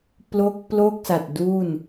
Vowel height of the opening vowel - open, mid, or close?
mid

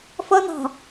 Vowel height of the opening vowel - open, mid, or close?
mid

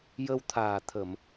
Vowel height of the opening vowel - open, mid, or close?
mid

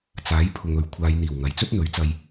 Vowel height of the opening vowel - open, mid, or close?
open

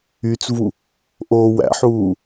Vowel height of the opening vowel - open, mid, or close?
close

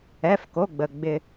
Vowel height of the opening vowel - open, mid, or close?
mid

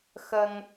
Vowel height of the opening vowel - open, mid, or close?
mid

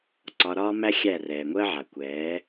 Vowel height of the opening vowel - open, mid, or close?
open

